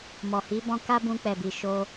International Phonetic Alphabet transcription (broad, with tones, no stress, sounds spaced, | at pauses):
m ɔ˨ h i˨˦ b ɔ̃˧ k a˦ b ũ˧ k͡p ɛ˨ b i˨ ʃ o˧